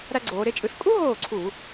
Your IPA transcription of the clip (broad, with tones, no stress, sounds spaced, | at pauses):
ɾ æ˥ ɡ͡ǀ oː˩˧ ɾ e˥ t͡ʃʼ ɯ˥˩ s kʼ u˥ ɦ oː˥˩ ǀʰ u˧˩˧